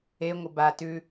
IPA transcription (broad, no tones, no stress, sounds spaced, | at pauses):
e ŋʷ ə b a t ʉ